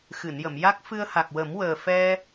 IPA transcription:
x ɨ˨˩˨ n j ə˨˩˨ m j a˦˥ k̚ f ɨ˧ ə̯ h a˨˩ k̚ w ə˨˩˦ m w əː˨˩ f ɛ˧

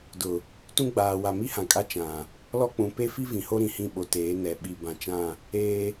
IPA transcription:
d ʊ˨ | t ũ˦ ɡ͡b aː˨ w a˨ m i˦ h ã˨ kʼ a˦ t͡ʃ ã˨ | l ɔ˦ k͡p ũ˨ p e˦ f i˦ v ĩ˨ h o˦ ɾ ĩ˨ h ĩ˦˨ ɓ o˨ t eː˨˦ n ɛ˨ ɓ i˨ b ã˨ t͡ʃ ã˦˨ | eː˦

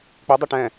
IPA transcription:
k͡p i dˤ ɛ ʈ ɛ̃

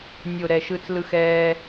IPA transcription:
nʲ o˥˧ ɾ ɛ˥˧ ʃ ɯ˥ t͡s l ɯ˥ x ɛː˥

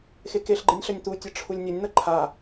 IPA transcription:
x e k e ɬ ɡ͡ǃ e nʲ ɬ ɐ nʲ t̪ u tʲ ɐ ʈ͡ʂʰ u lʲ nʲ ɐ nʲ n̪ ɐ ǃʰ a

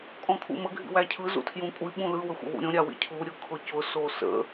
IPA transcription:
kʼ ɔ̃ kʰ ṵ m ə ɡʱ ḭ w æ cʰ ɯ z ṵ tʰ j ũ kʷʼ i ɓ ũ l ɯ w ə xʷ ə̰ w ṵ ɾʲ õ ɾʲ a w ḭ cʰ u ɾʲ ʊ kʰ ʊ c ʊ s o s ə̰

